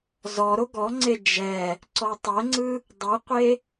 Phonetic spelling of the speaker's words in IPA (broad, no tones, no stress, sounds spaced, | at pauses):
z ɔ ɾ o ɡ ɔ ŋ͡ǀ e d͡ʒ ɛ | ǀ ɔ tˤ ɛ ŋ͡ǀ ɯ | dˤ ɯ qʷ e